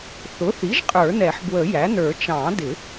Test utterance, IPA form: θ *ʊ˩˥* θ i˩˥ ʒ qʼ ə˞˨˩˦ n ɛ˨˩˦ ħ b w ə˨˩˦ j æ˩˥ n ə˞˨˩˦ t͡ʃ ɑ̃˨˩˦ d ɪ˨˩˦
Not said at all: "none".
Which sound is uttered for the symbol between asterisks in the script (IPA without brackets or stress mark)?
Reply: ʊ˩˥